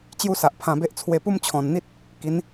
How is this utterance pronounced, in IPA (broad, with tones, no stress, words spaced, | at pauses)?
t͡ɕju˦sa˨ʔpʰã˧be˦ʔ t͡sʰwe˧pu˦mt͡ɕʰɔ̃˨˩nn̪i˦t̚ | ki˨˦n